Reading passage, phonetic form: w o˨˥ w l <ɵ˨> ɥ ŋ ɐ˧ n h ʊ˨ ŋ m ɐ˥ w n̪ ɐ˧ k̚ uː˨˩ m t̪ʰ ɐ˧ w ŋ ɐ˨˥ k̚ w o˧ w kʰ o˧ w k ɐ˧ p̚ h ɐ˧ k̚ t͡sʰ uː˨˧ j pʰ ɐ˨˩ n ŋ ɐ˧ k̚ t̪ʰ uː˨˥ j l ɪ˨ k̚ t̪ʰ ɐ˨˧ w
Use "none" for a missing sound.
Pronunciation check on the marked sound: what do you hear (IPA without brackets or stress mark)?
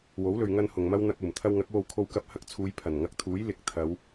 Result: ɵ˨